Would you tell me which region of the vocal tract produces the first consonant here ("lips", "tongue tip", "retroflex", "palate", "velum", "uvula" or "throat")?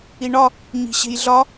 retroflex